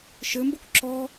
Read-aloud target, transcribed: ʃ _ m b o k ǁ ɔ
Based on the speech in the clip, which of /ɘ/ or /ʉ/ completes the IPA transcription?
ɘ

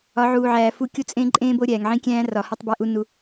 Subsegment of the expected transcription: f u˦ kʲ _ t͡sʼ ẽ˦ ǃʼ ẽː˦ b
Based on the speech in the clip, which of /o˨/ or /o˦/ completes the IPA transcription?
o˦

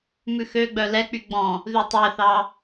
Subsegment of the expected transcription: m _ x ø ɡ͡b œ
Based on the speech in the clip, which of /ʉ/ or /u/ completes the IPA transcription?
ʉ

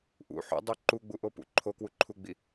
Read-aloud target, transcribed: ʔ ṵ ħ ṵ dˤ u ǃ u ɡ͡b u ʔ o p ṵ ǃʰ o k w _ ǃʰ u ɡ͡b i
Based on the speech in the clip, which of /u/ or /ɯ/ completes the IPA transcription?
u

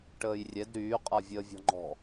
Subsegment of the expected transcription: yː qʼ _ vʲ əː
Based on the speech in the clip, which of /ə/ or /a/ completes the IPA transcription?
a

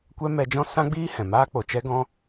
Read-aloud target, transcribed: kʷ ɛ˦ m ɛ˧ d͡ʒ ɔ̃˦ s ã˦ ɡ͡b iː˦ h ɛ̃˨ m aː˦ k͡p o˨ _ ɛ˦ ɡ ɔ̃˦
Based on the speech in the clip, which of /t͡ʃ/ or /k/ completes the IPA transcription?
t͡ʃ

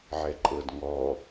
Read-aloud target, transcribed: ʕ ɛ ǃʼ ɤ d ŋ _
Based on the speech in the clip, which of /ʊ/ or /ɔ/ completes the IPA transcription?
ɔ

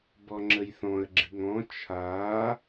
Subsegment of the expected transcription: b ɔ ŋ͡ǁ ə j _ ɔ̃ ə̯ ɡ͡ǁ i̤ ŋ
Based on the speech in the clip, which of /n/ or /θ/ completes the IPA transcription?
θ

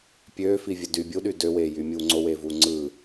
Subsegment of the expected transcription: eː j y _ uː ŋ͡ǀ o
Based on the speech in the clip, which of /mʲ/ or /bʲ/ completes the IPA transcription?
mʲ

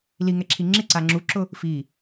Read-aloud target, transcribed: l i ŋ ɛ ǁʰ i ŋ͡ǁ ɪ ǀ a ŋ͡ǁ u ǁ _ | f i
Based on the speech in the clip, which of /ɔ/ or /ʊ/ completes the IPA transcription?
ʊ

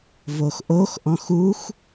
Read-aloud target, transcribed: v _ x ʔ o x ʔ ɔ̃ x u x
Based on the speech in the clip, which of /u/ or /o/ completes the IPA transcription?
o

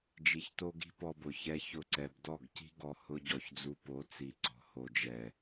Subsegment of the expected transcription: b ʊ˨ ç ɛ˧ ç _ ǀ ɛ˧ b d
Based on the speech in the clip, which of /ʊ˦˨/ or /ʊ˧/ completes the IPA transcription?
ʊ˦˨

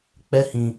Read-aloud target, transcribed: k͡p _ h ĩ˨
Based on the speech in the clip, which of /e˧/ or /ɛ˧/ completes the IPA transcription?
ɛ˧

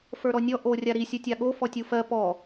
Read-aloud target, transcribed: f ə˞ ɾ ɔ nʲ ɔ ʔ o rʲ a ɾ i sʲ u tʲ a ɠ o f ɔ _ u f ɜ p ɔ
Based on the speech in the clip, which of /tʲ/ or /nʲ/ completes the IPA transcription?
tʲ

